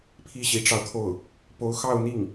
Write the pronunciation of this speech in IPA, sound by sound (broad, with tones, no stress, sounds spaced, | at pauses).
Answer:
pʰ i˥˩ ɕ i˧˥ ʈ͡ʂ ɑ˧ ʊ̯ t̪ʰ o˥˩ ʊ̯ | p o˧˥ ʊ̯ x ɑ˥˧ ʊ̯ n̪ i˥˩ ŋ